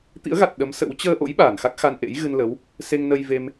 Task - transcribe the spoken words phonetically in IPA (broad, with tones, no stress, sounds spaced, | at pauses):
t̪ ḭ˧˥ ə̯ ɣ a˨˩ t̚ ɗ ə˨˦ m s ə̰˧˥ w t͡ɕ əː˧ ʔ o̰˧˥ j ɓ aː˧˩ n x a˦˥ k̚ x a˧ n ʔ ḛ˧˥ j ɣ ɨ˧ n l ə˨˦ w | s e˧ ŋ n ə˧ j v e˧ m